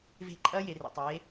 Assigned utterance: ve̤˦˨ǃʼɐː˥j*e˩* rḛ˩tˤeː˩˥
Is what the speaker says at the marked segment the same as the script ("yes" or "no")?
yes